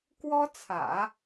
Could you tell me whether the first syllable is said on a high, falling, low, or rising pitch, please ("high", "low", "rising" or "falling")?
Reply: high